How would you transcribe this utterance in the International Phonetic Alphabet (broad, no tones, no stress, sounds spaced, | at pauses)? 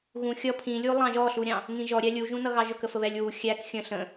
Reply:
ɣ ũ xʲ ʌ pʰ ĩ lʲ u lˠ ɑ̃ ʒ ɔ ɬ u ɾʲ ɑ̃ | ŋ ĩ ʒ ɔ ɾʲ æ lʲ u ʒ ũ n ʌ ɣ ɑ ʒ ʊ k ə f ə β ɛ lʲ w u xʲ æ k xʲ ə̃ ɬ ə̃